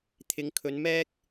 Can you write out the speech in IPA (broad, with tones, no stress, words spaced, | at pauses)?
t̪ʰɪ˨˧ŋ kʰɵ˨˧nmɛː˥k̚